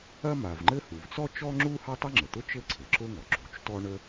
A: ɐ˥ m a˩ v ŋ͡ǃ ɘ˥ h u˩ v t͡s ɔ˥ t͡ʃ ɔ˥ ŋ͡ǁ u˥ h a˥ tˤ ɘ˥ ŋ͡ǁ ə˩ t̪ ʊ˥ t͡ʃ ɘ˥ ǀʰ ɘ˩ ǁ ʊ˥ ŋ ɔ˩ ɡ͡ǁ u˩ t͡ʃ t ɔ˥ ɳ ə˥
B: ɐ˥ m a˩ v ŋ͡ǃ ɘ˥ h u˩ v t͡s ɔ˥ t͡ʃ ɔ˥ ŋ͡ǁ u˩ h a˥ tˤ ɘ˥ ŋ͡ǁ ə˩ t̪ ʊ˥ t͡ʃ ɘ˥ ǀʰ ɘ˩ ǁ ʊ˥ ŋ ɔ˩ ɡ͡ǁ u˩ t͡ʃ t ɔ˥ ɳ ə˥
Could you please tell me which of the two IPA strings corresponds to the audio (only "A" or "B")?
A